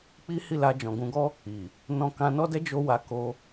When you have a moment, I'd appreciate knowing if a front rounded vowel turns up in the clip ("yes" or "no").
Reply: no